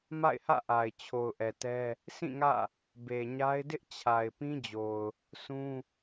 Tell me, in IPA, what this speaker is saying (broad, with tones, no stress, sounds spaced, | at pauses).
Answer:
m a̰˦˨ ɪ̯ h ä̰˦˨ ʔ a˨ ɪ̯ t͡ɕʰ o˨ ʊ̯ ʔ ɛ˨ t ɛ˦ | sʰ ĩ˦˨ ŋ ä̰˦˨ | b e˨ ɲ a˦ ɪ̯ d ɪ˦ ʔ t͡ɕʰ a˨ ɪ̯ p ĩ˦ d͡ʑ o˨ ʊ̯ | sʰ ũ˦